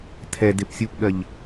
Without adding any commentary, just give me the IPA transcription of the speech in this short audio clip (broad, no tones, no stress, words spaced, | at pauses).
tʰɛdep sʲupɠɜʎ